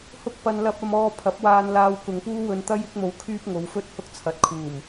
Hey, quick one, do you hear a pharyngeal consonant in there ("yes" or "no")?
no